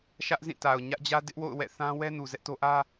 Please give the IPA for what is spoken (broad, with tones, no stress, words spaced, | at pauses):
ʃä˦ʔzĩ˦˨ta˨ʊ̯ ɲä˦ʔ d͡ʑä˦dɪ˦ʔwo̰˦˨ʊ̯ wɛ̰˦˨θã˦wɛ˦ nu˨zɛ˦ʔto˦ ʔä˦